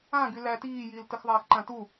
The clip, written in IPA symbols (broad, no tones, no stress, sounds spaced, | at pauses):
ã ɡ y l æ t iː j iː l t ə x ðˤ aː x ǃ ã t u